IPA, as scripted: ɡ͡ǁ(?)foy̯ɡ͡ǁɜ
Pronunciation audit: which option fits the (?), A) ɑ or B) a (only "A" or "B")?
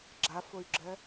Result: B